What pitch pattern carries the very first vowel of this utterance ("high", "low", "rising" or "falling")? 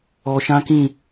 low